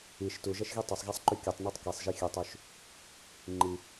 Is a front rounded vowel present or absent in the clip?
present